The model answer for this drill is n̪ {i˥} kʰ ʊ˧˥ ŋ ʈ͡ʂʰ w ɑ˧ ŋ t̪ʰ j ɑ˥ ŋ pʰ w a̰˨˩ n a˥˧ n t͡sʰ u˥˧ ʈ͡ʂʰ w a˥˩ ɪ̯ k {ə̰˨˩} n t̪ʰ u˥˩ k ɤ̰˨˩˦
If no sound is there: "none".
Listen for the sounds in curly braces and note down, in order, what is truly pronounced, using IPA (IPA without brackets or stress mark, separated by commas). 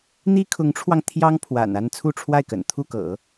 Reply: i˥, ə̰˨˩